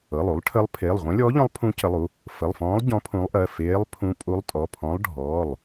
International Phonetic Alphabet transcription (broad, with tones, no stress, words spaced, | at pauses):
ɤ˩˧˩lˠu˧˥lˠʈʰə˧˥lˠ pʰeː˩˧˩lˠʁʷẽ˧˥lʲɔː˧˥ʎɔ̃˧˥lˠ pʰũ˧˥cə˩˧˩lˠu˩˧˩ | fə˩˧˩lˠfɔ̃ː˧˥lˠ ɟɔ̃˧˥pʰũ˧˥lˠʔɜ˩˧˩ feː˧˥lˠpʰũ˧˥ pʼu˧˥lˠtʼɔ˩˧˩pʰɔ̃˧˥lˠ ɖʱɔː˩˧˩lˠ